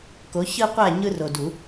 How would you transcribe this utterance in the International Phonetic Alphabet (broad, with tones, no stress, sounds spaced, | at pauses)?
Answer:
k o˨˦ ç ɯ˦ qʷ æ˦˨ ɲ ɯ˦ r o˨ d u˨˩˦